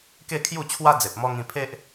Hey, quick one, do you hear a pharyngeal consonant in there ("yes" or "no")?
no